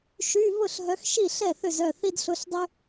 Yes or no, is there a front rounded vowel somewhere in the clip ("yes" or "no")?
yes